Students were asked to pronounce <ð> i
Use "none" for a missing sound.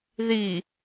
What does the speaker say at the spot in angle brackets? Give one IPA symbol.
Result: ð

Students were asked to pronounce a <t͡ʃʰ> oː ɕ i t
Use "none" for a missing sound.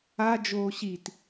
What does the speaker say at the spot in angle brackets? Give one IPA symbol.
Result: d͡ʒ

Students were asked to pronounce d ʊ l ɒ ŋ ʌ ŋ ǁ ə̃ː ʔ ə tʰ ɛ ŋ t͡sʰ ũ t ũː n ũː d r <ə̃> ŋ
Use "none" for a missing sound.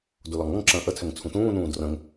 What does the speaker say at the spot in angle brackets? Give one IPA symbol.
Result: ə̃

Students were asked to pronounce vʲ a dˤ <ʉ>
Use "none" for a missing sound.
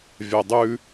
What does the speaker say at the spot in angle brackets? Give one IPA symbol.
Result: ʉ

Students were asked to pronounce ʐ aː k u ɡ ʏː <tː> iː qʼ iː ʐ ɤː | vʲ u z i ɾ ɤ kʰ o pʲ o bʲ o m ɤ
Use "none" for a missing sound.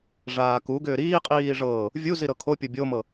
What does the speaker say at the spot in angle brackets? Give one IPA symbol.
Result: ɾ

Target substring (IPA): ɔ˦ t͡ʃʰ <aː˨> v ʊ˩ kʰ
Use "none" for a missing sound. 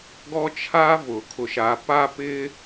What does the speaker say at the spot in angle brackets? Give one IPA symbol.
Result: aː˥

